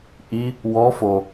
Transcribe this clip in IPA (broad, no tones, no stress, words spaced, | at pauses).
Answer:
ʔi | wɔ fo